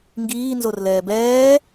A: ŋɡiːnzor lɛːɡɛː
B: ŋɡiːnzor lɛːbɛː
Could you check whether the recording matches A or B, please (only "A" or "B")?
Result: B